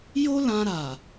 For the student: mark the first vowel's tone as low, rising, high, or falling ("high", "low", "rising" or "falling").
high